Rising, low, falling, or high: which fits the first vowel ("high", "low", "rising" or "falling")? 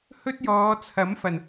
high